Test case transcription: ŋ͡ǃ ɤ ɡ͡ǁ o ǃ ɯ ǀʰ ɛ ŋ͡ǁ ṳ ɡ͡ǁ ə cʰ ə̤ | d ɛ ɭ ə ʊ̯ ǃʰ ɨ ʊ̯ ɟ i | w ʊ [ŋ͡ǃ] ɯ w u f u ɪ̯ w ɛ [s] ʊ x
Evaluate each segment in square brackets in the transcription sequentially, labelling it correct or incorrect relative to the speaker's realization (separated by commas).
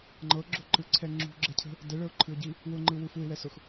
correct, correct